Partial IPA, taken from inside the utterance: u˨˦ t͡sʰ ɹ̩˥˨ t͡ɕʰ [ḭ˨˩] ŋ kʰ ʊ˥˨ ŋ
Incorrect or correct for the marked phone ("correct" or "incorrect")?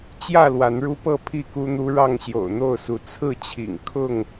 correct